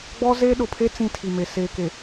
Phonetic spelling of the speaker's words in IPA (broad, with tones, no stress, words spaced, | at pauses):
ɡ͡bɔ˦ze˦ ɗʊ˨pʰe˦ t͡sĩ˦tʰi˨me˨ seː˨ke˨